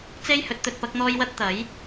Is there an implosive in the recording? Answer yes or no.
no